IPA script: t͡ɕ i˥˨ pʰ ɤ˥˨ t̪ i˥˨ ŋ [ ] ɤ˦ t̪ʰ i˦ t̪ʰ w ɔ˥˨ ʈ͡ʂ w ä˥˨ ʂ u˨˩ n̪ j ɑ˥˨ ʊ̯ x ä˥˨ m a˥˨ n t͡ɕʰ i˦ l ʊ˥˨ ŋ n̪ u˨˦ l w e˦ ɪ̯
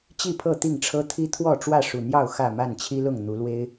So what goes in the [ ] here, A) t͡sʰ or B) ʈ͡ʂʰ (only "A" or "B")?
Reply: B